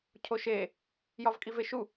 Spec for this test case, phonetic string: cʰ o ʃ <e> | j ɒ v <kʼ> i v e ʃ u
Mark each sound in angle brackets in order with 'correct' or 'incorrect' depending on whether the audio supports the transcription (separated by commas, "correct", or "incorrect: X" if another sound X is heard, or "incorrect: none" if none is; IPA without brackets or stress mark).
correct, correct